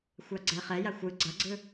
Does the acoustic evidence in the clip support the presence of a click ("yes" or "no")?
yes